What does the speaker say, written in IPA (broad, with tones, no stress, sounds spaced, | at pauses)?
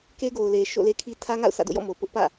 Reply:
k e˦ ɡ o˨ ʊ̯ l e˨ ʃ o̰˦˨ l e˦ kʰ i˦ tʰ ä˦ ŋ a̰˦˨ ʊ̯ s ä̰˦˨ d o̰˦˨ j ɔ̰˦˨ m o˨ p ʊ˦ ʔ p ä̰˦˨